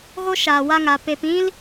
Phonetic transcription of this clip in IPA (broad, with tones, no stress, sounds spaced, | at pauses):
ɣ o˦ ʃ aː˨ w a˧ ŋ a˨ p e˧ p ĩ˦ l